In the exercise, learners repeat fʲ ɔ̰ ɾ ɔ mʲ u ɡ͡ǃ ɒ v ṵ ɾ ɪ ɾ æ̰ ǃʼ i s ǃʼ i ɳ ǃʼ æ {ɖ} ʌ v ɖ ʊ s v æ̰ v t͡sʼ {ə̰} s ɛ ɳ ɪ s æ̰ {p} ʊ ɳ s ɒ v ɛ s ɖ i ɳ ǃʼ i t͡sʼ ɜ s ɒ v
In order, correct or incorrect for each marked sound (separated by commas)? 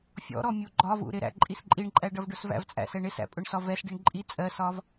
correct, incorrect, incorrect